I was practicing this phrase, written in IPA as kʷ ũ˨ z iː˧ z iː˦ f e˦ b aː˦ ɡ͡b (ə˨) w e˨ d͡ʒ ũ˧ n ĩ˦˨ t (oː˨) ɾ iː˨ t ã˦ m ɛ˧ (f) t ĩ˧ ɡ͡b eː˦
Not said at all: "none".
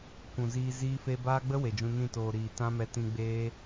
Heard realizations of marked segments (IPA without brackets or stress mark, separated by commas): ə˦, oː˨, none